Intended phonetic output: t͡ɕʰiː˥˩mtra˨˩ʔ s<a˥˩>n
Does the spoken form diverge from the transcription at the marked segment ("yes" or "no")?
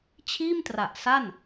no